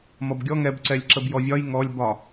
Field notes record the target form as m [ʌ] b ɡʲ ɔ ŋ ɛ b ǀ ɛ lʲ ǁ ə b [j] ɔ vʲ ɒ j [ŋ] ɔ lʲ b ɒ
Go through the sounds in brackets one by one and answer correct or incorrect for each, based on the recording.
correct, correct, correct

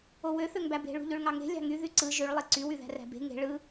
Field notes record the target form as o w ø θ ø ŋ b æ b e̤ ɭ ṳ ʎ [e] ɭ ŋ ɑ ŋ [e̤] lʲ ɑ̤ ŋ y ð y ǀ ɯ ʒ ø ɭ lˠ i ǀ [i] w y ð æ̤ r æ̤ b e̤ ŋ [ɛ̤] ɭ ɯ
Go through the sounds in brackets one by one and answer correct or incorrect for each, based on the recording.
incorrect: ø, correct, incorrect: y, incorrect: e̤

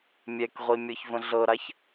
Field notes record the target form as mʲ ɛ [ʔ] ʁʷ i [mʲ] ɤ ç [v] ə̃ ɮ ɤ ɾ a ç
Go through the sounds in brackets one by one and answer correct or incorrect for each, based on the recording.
incorrect: k, correct, correct

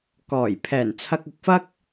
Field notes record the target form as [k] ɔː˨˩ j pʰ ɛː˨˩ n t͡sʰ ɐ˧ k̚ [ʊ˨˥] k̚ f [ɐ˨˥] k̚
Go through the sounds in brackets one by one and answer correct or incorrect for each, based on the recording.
correct, correct, incorrect: ɐ˥

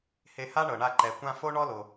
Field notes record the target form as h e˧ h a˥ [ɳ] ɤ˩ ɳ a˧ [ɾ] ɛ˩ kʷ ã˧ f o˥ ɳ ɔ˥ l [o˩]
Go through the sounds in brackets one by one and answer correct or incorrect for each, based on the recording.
correct, incorrect: ǃ, correct

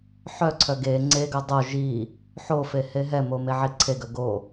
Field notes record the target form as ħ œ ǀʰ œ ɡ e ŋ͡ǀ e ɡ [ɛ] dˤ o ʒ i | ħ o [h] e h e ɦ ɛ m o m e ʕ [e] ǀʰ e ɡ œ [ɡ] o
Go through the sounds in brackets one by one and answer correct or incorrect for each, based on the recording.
incorrect: œ, incorrect: f, incorrect: i, correct

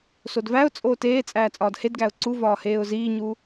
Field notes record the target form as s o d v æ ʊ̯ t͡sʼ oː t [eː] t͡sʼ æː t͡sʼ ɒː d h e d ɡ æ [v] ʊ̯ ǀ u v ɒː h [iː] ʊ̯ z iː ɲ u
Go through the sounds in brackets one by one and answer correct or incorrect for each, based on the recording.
correct, incorrect: none, incorrect: eː

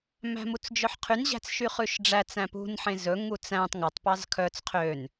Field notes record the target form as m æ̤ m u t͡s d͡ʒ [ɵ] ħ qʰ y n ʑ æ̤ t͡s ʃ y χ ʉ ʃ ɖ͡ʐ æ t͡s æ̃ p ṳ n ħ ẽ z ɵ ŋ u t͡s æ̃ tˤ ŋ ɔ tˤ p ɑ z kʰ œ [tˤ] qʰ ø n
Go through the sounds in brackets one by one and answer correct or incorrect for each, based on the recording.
incorrect: œ, incorrect: t͡s

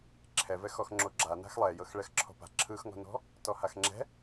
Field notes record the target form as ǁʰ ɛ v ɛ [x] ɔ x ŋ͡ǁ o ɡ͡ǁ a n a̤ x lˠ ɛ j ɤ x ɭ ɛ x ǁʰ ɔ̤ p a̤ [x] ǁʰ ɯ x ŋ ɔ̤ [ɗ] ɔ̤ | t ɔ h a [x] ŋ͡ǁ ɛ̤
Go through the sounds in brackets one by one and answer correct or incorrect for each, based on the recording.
correct, incorrect: none, incorrect: n, correct

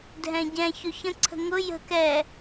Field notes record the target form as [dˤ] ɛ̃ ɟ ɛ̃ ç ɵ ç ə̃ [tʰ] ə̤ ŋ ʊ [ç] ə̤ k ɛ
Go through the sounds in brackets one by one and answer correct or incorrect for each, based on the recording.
incorrect: dʱ, incorrect: ǀʰ, incorrect: j

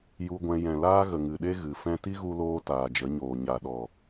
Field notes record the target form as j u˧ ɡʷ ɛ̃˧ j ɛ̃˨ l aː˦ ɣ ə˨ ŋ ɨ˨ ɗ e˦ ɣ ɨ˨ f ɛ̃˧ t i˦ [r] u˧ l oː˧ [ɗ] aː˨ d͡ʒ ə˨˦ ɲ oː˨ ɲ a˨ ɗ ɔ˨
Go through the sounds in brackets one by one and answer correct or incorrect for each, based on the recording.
incorrect: ɣ, incorrect: t

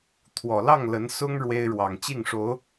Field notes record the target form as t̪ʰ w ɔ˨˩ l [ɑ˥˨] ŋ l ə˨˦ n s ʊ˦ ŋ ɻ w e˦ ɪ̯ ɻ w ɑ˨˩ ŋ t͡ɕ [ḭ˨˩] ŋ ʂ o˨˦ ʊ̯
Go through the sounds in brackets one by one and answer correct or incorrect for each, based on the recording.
correct, incorrect: i˥˨

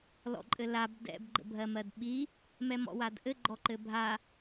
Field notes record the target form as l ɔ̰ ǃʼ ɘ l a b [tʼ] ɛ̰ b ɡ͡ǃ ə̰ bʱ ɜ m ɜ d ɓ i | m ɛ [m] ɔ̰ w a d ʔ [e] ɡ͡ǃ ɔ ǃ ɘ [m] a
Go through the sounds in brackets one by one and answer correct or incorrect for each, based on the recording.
incorrect: d, correct, incorrect: ɘ, incorrect: bʱ

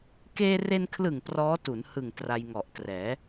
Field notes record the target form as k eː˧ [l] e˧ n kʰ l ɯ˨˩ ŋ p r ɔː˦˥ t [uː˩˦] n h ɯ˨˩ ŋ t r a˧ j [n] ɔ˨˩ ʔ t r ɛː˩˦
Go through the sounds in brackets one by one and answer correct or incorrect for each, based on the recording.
incorrect: r, incorrect: u˩˦, incorrect: ŋ

